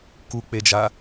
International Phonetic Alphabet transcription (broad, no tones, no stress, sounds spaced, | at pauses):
k u k͡p e d͡ʒ a